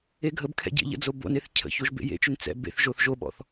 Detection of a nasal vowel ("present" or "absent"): absent